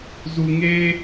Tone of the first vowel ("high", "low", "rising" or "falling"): low